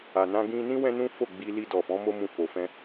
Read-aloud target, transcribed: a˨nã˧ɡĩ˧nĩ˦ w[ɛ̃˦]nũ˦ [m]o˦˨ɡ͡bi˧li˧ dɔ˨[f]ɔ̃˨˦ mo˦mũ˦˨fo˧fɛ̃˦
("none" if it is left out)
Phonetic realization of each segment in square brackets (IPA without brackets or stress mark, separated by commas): ɛ̃˦, f, f